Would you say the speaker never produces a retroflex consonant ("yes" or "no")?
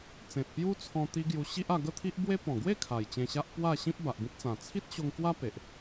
yes